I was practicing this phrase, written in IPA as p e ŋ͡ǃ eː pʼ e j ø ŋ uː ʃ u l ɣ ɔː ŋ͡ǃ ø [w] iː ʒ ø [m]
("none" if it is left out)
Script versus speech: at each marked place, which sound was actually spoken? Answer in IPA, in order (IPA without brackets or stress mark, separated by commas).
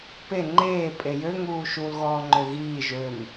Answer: ɣ, m